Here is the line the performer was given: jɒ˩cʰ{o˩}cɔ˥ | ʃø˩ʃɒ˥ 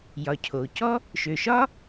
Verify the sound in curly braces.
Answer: correct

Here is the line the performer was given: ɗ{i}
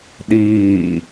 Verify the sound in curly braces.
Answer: incorrect: iː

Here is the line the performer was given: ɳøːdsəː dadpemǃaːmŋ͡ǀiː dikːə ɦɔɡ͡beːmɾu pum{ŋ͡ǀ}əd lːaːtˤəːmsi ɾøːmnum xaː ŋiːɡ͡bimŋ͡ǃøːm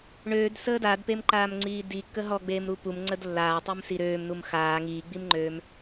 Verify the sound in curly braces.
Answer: correct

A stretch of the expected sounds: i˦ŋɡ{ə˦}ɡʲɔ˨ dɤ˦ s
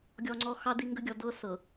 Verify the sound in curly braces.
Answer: correct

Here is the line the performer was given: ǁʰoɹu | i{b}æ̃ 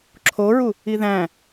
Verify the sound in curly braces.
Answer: incorrect: ð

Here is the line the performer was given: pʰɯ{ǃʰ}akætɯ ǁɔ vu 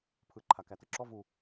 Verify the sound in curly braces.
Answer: correct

